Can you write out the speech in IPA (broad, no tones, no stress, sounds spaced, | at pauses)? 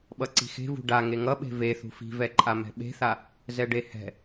ɓ ʌ ǀ i̤ x e̤ v ṳ ɖ a ŋ e ŋ ʌ ɓ e̤ v e θ ṳ f i̤ v ɛ ǃʼ a m ɛ̤ ɓ e̤ θ a | z ɛ ɖ e h ɛ̤